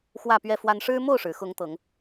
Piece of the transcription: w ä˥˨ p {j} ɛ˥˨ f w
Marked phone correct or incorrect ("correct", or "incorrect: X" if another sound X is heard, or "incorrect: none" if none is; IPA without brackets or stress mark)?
incorrect: ɥ